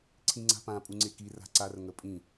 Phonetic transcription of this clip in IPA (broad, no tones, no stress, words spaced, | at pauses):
ǀʰĩŋ͡ǀa̤pã pʼuŋ͡ǀeki ra̤ǀar ŋəpʼĩ